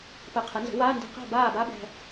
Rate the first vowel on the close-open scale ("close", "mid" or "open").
mid